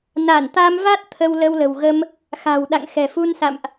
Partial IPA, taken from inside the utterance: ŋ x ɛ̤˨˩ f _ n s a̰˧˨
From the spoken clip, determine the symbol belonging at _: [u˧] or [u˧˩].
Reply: u˧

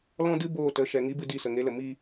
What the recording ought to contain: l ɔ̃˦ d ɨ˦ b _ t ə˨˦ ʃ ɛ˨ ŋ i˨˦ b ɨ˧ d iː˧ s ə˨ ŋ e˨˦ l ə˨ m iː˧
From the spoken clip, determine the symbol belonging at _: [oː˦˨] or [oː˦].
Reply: oː˦˨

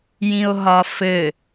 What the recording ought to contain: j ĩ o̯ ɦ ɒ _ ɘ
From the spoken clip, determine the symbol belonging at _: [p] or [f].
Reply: f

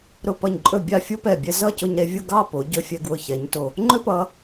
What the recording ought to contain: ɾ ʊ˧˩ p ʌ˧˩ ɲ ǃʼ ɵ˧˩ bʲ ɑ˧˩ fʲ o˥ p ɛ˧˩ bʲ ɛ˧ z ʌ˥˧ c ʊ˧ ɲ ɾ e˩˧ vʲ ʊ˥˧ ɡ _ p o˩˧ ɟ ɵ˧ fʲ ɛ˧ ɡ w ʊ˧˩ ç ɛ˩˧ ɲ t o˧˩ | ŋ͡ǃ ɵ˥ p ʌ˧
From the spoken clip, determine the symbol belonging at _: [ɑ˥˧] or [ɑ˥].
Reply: ɑ˥˧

